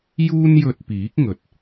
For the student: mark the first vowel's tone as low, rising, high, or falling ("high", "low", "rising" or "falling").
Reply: high